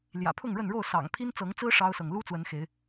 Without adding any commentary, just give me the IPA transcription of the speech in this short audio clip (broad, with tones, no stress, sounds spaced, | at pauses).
l j ä̰˨˩ pʰ ʊ˥˨ ŋ ɻ ə˥˨ n ɻ o˥˨ ʊ̯ s ɑ̰˨˩ ŋ pʰ i˦ n t͡s ɤ˨˦ ŋ t͡s ɹ̩˦ ʂ ɑ˦ ʊ̯ s ɤ˨ ŋ l u˦ t͡s w ə˨˦ n x e˨˦ ɪ̯